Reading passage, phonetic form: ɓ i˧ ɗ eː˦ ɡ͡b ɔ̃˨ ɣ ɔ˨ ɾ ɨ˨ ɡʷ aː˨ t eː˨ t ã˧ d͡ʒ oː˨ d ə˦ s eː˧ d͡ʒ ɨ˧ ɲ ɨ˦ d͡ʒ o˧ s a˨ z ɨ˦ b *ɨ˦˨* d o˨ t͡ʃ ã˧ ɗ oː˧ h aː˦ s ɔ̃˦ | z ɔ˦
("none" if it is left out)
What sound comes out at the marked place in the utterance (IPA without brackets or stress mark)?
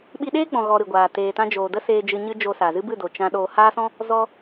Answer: ɨ˦˨